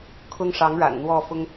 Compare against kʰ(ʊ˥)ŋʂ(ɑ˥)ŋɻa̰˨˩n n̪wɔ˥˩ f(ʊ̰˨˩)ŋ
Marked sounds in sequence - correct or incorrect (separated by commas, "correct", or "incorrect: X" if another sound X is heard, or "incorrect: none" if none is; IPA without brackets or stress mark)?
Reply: correct, incorrect: ɑ˧˥, incorrect: ʊ˥